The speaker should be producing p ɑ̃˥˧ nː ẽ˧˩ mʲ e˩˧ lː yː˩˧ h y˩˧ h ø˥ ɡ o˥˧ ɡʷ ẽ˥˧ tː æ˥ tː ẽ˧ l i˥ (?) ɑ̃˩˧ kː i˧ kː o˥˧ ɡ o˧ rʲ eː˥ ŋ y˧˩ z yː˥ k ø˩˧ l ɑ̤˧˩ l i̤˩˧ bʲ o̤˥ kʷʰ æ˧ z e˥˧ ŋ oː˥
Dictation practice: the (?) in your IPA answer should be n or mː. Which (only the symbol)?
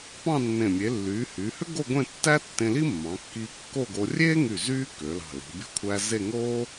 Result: mː